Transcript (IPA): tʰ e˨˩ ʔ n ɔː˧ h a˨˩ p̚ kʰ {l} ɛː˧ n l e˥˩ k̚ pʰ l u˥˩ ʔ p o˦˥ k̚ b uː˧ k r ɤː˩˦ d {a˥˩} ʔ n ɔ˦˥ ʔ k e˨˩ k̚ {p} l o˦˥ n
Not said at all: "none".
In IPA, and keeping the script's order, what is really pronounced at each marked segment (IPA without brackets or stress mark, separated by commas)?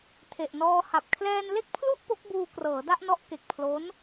l, a˥˩, pʰ